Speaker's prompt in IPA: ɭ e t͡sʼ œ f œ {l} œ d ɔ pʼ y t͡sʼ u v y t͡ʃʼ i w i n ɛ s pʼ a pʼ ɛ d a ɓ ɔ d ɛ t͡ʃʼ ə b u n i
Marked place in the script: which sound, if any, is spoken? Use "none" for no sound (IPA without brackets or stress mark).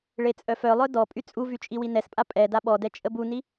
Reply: lˠ